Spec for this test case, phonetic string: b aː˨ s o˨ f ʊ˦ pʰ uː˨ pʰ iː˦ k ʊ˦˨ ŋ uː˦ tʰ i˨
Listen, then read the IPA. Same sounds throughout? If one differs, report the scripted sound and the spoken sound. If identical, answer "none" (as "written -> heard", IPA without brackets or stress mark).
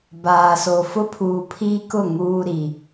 tʰ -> ɾ